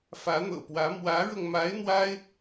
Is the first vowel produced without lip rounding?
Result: yes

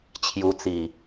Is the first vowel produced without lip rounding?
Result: no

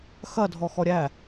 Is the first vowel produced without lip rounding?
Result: yes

